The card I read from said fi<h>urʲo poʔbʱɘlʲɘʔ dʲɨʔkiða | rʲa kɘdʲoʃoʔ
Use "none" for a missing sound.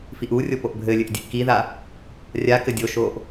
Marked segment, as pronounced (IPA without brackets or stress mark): ʔ